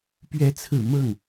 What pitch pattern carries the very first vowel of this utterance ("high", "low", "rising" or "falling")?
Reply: rising